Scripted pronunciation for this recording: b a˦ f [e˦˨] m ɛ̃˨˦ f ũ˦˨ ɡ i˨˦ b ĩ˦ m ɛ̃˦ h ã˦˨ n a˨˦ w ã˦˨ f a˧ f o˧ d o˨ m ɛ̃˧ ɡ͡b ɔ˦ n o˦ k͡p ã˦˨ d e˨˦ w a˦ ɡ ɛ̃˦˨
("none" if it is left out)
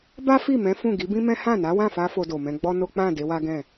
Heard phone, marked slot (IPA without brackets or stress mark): i˦˨